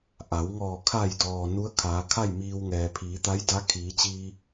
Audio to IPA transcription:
ʔ a˩˧ w ŋ ɔː˧˩ kʰ a˧˩ j d ɔː˩ n u˧˥ ə̯ kʰ aː˩˧ kʰ a˥˨ j m iː˧ w ŋ ɛː˩ pʰ iː˩˧ t̪ a˧˥ j d a˧˥ kʰ iː˩˧ t͡ɕ iː˧

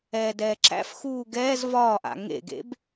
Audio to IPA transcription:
ɛː d ɛː ǁ æ̰ f x uː ɡ ɛː z v ɒː ʔ a̰ ŋ ḛ ɡ ḛ b

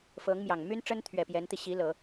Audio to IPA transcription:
f ɤ˧˥ ŋ m j ɑ˨˩ ŋ m y˥ n ʈ͡ʂ ə˥ n t̪ʰ ɥ ɛ˨˩ p j ɛ˧˥ n t̪ i˧ ɕ i˧˥ l ɤ˨˩˦

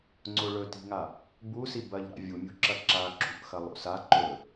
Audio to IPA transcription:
ŋ͡ǀ o ɭ ɵ t i̤ ŋ a | b u s i b ɐ ʎ ɾ a̰ vʲ u mʲ ṳ ǁ ɐ ǁ a ǁ ṳ ʔ x ɐ lˠ o̰ s a ǃ ɵ

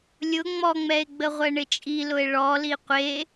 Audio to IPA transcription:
lʲ ʊ ŋ͡m ɔ ŋ͡m ɛ e̯ ɡ͡b ə ʁʷ ɛ ɳ ɪ t͡ʃʼ i l ʊ e̯ ɭ ɔ l i qʷ e

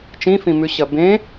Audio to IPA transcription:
t͡ʃ ĩ f ĩ m ʉ ɕ ɐ b ẽ

